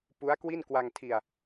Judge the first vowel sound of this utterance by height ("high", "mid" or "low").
high